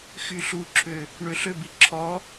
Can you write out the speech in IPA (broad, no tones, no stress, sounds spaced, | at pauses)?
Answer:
x y ɬ u ǁʰ ø | ɳ ø ɬ ø b i ǁʰ ɔ